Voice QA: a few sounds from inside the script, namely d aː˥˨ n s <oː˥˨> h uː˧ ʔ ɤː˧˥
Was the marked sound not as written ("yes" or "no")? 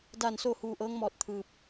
no